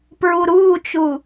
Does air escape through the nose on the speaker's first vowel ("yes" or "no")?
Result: no